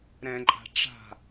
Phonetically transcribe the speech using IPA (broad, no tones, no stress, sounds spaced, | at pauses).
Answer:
ɾ ɛ̃ ǃʼ a̤ ʈ͡ʂ a̤